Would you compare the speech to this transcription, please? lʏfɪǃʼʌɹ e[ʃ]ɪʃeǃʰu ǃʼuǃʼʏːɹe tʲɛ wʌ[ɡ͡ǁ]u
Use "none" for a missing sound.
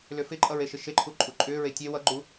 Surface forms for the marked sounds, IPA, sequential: ʃ, ɡ͡ǃ

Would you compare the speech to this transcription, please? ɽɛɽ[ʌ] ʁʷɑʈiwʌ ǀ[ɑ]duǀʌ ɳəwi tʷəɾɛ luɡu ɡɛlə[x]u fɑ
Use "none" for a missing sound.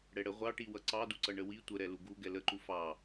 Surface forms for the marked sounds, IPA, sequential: ə, ɑ, ǃ

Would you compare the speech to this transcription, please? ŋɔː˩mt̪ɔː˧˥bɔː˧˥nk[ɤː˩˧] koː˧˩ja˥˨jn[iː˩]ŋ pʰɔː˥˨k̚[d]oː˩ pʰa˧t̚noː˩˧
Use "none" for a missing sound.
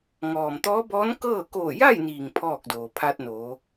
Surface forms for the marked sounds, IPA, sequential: ɤː˥˨, iː˩, d

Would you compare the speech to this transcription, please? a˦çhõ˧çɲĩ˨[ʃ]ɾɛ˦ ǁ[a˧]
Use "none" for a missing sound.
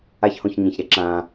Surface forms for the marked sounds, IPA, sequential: ç, ã˧

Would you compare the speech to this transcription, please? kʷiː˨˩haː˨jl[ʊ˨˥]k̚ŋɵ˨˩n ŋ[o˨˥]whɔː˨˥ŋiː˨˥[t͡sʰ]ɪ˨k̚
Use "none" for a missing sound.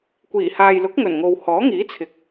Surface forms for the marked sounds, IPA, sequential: ʊ˨˥, o˨, t͡sʰ

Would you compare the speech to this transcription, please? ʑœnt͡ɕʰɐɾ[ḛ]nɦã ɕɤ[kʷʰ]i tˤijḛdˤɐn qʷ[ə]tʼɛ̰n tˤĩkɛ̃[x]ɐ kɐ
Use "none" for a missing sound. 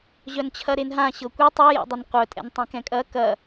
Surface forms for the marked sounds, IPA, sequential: e, kʷ, œ, kʼ

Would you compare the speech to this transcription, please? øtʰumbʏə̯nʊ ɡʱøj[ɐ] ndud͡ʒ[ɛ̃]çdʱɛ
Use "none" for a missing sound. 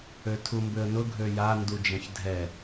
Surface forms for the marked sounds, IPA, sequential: a, ɛ̃

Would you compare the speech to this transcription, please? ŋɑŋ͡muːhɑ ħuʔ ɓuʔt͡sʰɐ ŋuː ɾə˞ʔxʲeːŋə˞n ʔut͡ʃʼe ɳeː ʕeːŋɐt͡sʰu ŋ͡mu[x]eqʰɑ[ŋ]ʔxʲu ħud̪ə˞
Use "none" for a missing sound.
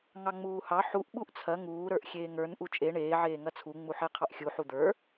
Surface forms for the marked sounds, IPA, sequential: ħ, none

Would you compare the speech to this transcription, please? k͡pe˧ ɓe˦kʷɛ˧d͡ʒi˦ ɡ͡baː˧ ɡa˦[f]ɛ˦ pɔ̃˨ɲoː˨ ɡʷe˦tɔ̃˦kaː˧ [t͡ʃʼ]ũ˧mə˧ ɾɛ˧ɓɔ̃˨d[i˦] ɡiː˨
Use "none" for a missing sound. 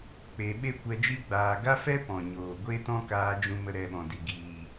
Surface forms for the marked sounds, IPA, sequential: f, d͡ʒ, i˨

